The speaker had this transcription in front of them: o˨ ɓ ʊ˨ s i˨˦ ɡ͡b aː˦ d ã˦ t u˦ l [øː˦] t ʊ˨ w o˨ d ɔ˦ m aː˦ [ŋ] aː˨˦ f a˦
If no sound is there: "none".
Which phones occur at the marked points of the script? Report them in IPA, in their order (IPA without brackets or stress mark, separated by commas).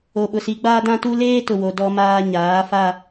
eː˦, ɲ